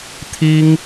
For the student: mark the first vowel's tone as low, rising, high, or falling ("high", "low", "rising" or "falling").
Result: high